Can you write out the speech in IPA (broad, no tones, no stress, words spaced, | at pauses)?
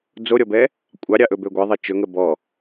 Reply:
d͡zoɾʲɔbɛ | kʷʼɑɾʲɑʔɵbø ɡʷɛðˤe t͡ʃɵŋə bɔ